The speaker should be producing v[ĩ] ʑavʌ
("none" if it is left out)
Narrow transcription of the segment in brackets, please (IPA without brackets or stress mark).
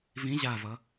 ĩ